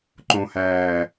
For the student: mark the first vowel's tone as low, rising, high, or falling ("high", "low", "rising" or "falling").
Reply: low